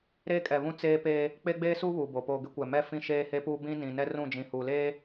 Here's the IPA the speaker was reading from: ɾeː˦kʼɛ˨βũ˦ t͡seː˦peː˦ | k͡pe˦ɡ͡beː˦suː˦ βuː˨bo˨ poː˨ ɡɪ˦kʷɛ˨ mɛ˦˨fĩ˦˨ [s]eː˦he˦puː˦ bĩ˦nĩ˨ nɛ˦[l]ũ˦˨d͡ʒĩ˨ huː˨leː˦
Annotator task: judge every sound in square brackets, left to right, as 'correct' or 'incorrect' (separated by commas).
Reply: incorrect, incorrect